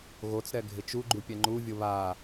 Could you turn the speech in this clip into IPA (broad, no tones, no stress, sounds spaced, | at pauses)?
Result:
ɣ o t͡s ɾ ɛ ɡʱ ɪ t͡ʃ u ɡ͡ǃ u pʲ ɛ ŋ͡ǃ u vʲ ʊ β a